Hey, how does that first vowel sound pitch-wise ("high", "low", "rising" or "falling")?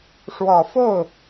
low